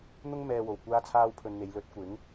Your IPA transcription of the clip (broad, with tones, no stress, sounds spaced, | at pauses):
n̪ ʊ˥ ŋ m ɛː˧ w o˨˩ w kʷ aː˥ t͡sʰ aː˥ w pʰ ɵ˧ n n̪ e˨˧ j l ɵ˨˥ t̚ kʷ ɪ˨˥ ŋ